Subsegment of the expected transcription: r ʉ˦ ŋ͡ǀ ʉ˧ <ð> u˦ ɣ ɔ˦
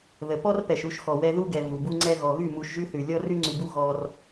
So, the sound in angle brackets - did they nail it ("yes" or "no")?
no